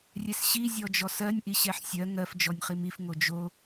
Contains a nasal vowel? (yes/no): no